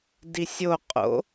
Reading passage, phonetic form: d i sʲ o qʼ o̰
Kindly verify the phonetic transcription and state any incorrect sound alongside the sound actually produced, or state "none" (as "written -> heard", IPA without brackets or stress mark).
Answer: none